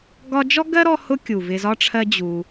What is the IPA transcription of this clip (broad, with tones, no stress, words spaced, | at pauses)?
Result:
ɡɒ˦d͡ʒɔ˥ ɡɜ˥ɾɔ˦hʊ˦ kʲu˩vɪ˨ zɒ˦ʈ͡ʂʰɜ˦ d͡ʑu˨